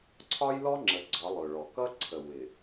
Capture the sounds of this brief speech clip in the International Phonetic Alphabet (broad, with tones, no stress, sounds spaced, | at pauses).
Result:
ǀʰ ɒ˦ j l ɔ˦ ŋ͡ǁ ə˨ ɡ͡ǀ ɒ˨˦ lˠ ʊ˨ ɭ ɔ˨ k ʌ˦ ǀʰ ə˨ w ɪ˨